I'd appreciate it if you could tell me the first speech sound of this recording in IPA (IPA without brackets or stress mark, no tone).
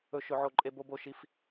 ɵ